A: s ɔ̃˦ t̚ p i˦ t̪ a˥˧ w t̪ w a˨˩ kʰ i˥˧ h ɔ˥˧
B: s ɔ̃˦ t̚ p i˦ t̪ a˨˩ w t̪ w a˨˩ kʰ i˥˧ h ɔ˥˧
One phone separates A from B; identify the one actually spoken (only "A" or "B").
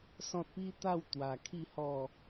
A